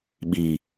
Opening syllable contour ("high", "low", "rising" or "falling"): low